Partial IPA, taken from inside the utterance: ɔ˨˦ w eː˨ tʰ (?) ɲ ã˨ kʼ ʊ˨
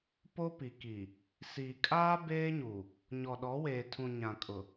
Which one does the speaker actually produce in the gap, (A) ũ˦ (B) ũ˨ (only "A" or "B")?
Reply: B